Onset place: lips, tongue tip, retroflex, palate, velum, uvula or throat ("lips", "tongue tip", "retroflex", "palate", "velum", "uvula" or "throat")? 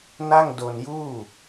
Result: tongue tip